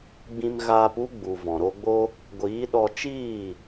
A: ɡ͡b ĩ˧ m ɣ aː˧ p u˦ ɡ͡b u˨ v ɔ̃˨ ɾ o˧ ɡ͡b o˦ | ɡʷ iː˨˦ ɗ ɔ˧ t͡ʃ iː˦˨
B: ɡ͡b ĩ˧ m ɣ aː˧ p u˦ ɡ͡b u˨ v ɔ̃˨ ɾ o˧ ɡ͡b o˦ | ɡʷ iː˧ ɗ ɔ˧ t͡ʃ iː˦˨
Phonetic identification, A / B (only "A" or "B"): A